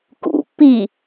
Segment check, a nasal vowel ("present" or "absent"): absent